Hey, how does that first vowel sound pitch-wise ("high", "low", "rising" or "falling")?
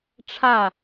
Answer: falling